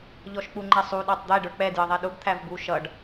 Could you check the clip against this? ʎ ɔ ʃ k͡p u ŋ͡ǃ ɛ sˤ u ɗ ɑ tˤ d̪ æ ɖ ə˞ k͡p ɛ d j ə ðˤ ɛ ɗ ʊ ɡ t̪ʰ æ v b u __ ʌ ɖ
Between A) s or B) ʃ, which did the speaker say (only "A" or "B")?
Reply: B